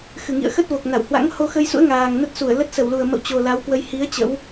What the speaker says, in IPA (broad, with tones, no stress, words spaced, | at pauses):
xɨ˨˩ŋḭ˧˨ə̯xə˦˥t̚vo˨˩k̚ na˧˩whwa̰˧˥ŋ ho˧xə˧jsṵ˧˥ə̯ ŋaː˨˩ŋnə˦˥t̚su˧˩ə̯lə˦˥t̚ sə˧˩wlu˨˩ə̯mə̰˧˨w t͡ɕo˨˩ la˨˦wkwə˧j hi˨˦ə̯ t͡ɕə̰˧˥w